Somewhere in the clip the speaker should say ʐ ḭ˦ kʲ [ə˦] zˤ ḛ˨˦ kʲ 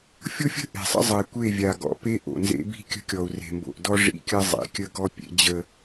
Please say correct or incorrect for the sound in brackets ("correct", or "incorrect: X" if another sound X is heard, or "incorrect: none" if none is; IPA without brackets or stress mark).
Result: correct